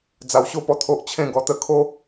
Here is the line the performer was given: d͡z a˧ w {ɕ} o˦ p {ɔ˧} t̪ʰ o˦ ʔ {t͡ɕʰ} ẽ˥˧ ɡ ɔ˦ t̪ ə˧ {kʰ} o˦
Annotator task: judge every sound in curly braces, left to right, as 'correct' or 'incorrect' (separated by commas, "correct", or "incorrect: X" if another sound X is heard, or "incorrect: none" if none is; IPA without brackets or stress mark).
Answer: correct, correct, correct, correct